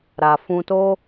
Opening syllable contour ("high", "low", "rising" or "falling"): low